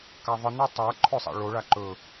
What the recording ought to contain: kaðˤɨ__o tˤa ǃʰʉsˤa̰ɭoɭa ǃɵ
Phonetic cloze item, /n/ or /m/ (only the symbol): n